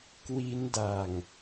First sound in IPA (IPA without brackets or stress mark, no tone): k